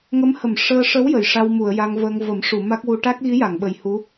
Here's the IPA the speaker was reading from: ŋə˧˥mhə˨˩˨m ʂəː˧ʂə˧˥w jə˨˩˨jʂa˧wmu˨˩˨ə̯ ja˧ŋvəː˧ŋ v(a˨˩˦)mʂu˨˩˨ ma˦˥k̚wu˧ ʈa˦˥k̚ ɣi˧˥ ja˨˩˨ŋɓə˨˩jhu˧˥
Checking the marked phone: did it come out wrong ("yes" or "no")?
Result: yes